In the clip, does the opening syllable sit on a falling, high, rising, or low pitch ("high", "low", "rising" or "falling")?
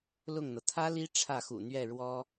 falling